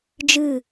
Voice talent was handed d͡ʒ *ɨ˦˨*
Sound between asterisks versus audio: correct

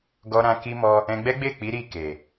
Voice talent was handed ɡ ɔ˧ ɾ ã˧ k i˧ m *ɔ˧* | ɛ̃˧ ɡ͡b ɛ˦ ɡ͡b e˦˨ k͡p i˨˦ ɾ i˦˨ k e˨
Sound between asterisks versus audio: correct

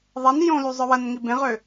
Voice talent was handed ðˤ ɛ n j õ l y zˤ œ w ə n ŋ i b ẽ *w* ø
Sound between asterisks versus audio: incorrect: ʁ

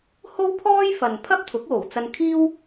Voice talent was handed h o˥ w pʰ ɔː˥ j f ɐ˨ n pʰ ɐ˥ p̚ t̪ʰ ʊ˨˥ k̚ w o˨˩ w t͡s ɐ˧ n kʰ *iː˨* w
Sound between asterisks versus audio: incorrect: iː˥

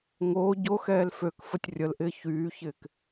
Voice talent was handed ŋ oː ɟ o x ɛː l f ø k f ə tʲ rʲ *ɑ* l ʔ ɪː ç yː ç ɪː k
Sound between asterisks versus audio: incorrect: ə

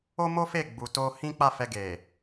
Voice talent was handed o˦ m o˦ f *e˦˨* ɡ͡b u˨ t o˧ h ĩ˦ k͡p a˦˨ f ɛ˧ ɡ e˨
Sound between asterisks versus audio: correct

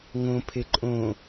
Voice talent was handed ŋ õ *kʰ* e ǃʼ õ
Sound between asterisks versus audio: incorrect: pʰ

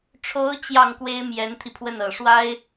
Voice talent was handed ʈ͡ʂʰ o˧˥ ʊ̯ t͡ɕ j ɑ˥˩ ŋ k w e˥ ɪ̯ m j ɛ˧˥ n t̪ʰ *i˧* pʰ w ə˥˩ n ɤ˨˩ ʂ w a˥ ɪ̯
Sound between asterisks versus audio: correct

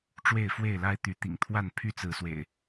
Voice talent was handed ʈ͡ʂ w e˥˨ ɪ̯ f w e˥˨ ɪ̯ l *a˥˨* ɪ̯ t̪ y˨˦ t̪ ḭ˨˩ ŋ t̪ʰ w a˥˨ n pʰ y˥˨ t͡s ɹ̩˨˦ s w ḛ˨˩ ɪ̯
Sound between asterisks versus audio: incorrect: a˦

